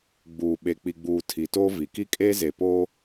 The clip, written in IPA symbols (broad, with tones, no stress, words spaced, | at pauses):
ɡ͡buː˨ɓe˨k͡pi˨ɡ͡buː˨ tʰi˨toː˦vi˨ ki˦kʼeː˦zeː˨poː˦